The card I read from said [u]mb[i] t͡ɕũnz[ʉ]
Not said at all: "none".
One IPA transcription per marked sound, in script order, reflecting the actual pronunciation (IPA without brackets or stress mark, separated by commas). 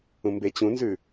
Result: ũ, e, ʉ